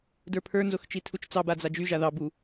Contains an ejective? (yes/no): no